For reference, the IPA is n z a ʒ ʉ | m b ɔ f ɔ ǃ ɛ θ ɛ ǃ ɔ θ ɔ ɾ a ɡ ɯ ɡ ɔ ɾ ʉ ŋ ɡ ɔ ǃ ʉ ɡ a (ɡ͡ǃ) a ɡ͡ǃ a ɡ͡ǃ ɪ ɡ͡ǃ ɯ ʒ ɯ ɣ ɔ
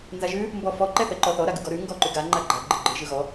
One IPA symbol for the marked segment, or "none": ŋ͡ǃ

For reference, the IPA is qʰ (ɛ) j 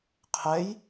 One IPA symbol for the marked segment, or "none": ɛ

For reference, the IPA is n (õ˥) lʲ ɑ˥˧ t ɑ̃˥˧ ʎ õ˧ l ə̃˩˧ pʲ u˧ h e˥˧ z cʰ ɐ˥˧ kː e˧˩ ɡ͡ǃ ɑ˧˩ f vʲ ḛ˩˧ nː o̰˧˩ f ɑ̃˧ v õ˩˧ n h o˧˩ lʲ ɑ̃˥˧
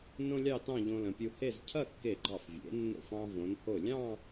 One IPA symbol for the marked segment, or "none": õ˥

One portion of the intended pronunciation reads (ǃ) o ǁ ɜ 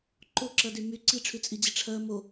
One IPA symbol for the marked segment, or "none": ǃ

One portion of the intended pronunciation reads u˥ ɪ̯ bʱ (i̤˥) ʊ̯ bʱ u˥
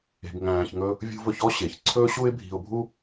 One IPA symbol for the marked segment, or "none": i̤˧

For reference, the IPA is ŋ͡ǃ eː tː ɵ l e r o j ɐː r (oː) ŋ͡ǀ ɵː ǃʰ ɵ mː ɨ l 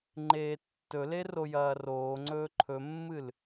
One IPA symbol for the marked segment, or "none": oː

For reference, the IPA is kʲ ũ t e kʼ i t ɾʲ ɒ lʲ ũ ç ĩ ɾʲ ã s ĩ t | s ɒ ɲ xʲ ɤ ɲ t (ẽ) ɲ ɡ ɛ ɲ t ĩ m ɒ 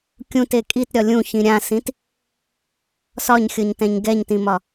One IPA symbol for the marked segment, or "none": ɛ̃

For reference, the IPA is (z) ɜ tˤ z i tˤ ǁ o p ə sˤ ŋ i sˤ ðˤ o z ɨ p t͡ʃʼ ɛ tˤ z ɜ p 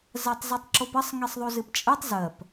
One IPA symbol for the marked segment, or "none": z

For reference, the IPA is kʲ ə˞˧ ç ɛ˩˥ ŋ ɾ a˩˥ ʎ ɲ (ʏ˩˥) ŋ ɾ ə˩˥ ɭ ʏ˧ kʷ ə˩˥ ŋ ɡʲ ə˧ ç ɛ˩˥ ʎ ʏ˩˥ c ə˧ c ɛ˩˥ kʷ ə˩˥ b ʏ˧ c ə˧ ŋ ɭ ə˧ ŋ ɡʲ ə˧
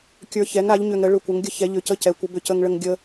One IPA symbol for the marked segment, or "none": ʏ˧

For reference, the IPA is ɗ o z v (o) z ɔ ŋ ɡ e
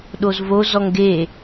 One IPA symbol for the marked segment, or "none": o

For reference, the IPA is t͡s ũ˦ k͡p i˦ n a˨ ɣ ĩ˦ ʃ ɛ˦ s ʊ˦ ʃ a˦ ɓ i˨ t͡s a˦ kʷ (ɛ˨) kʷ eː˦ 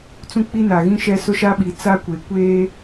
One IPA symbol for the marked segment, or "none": e˨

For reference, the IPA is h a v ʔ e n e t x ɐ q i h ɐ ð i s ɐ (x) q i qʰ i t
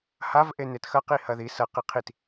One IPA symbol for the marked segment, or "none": none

